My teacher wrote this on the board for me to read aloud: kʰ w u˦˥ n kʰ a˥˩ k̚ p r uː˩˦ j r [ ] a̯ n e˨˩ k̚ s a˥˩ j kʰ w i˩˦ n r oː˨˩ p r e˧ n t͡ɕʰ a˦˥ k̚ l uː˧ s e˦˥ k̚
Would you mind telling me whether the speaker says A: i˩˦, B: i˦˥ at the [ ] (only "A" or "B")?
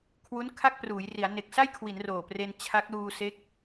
A